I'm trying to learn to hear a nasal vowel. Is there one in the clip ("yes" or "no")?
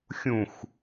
yes